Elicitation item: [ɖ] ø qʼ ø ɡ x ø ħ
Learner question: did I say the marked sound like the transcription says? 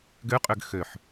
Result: no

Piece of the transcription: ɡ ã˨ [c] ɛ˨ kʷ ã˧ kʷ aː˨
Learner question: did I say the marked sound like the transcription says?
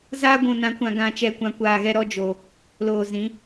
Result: no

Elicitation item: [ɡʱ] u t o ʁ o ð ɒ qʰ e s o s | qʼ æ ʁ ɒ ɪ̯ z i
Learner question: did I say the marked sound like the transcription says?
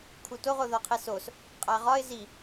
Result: no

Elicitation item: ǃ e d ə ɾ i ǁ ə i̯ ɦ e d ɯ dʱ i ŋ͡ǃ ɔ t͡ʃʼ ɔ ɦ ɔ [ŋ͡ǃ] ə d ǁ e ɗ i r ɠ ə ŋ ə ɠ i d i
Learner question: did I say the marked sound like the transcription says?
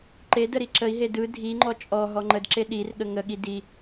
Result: yes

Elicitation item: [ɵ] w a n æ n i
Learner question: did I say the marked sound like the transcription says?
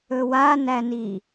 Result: yes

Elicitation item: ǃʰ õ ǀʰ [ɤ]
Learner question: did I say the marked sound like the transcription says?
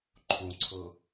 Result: yes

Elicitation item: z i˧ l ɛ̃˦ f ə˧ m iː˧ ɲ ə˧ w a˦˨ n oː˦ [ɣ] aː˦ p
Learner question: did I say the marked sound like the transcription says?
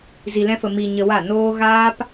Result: yes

